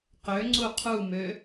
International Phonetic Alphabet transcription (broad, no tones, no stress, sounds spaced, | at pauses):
q ø ŋ͡ǀ u qʰ u m ø